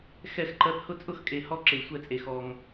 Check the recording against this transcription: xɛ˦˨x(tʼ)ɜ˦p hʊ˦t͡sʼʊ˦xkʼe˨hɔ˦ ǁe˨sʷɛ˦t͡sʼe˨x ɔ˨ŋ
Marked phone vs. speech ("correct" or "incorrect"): incorrect